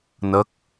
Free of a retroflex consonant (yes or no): yes